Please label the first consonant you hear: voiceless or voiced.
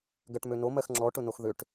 voiced